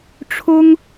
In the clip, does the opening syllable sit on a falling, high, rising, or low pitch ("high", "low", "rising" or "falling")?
high